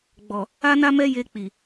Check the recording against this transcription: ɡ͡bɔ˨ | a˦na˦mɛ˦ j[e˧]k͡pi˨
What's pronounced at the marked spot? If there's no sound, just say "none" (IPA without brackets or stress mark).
e˧